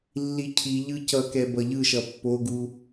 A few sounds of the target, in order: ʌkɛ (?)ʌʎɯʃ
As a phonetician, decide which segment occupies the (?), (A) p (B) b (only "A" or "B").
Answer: B